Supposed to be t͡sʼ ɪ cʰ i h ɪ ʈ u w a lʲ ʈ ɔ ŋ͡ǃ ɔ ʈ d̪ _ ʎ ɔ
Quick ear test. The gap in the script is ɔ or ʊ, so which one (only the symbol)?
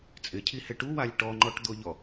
ʊ